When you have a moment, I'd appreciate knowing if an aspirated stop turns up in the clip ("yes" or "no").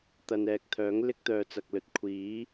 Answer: yes